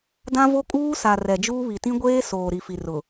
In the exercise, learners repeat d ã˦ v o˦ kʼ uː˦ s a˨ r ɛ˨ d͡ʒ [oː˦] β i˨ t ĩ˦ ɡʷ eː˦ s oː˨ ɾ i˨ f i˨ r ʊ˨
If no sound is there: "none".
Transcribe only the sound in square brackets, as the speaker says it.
uː˦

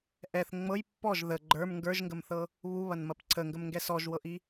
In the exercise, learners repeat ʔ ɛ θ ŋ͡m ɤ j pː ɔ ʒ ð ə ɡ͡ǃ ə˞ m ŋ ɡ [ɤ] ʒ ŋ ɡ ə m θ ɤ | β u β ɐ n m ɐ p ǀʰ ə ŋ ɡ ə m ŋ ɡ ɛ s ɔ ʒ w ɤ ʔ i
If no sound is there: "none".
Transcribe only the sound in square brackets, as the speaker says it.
ə˞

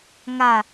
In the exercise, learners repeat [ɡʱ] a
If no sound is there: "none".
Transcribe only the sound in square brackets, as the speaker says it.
ŋ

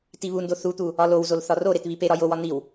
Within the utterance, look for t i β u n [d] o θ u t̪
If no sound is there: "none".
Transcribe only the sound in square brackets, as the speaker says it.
d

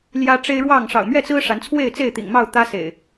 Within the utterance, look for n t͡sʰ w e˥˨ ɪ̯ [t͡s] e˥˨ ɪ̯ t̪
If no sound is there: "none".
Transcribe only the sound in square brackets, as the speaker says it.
t͡s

